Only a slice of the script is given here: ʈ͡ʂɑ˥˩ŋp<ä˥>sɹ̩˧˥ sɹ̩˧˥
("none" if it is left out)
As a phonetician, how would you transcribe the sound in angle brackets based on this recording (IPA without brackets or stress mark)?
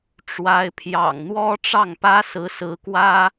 ä˥